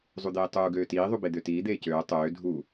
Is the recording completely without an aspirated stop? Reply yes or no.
yes